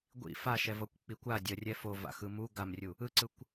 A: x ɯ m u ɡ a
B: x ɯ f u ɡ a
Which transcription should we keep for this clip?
A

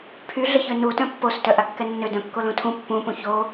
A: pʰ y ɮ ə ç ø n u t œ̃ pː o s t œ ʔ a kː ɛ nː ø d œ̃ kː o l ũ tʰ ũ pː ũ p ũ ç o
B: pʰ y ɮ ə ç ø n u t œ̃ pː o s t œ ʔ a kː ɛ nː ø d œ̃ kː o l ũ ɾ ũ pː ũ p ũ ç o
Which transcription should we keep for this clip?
A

